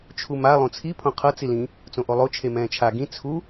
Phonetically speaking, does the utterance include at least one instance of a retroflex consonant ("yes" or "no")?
no